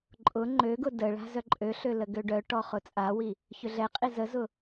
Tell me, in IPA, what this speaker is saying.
ǃʼ ʊ ŋ͡ǃ ø ɡ ʊ d ə ɭ a̤ z œ ǃʼ ø ɬ ø l ə ɡ ø ɖ œ ʈ ɔ χ ʊ t͡sʼ a w i | ç ʏ ɮ ɛ qʼ i z ə z ʊ

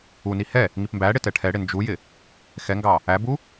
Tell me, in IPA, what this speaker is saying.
u n i h ɛ | ŋ i p m b æ ɽ ɪ t ɛ ʈʰ ɛ ɽ ɪ n d͡ʒ u j ɪ | x ɛ ŋ ɡ ɑ | æ b u

